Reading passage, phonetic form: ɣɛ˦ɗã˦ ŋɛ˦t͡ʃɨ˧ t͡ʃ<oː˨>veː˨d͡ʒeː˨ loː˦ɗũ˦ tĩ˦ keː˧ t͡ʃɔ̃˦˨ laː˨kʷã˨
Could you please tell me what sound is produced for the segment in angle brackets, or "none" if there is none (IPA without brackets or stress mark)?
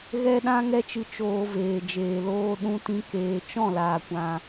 oː˧